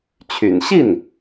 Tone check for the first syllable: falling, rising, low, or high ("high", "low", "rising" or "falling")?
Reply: low